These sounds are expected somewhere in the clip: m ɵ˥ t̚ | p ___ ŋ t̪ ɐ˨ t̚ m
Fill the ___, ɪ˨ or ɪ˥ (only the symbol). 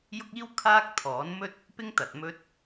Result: ɪ˥